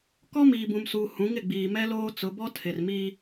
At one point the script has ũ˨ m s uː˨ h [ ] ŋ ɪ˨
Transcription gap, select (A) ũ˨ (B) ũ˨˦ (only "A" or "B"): B